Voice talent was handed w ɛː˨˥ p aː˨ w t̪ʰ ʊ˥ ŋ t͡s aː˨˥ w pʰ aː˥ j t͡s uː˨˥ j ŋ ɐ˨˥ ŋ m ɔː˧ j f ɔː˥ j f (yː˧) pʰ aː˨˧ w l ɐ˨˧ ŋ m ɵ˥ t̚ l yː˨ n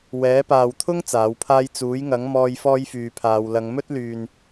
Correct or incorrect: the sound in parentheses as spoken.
incorrect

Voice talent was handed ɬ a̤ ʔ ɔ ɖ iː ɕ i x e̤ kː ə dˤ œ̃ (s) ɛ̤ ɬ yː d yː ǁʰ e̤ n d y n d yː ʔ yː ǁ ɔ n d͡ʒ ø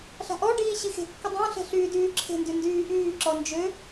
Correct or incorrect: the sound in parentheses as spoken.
incorrect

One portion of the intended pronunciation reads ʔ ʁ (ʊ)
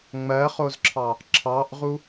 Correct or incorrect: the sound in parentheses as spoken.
incorrect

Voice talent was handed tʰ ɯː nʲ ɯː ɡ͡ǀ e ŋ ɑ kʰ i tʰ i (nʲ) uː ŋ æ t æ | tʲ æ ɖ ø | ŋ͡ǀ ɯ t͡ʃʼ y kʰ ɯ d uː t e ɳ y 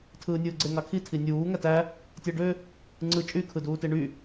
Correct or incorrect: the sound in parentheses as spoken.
correct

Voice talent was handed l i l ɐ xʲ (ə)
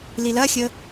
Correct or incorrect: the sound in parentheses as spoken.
correct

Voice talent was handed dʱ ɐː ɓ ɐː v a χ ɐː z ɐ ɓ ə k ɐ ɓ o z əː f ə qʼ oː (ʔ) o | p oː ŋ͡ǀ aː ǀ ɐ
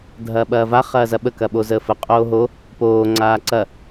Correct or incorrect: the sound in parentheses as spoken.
incorrect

